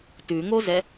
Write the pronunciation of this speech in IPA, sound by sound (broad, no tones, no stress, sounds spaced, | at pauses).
t ʉ ŋ o z ɛ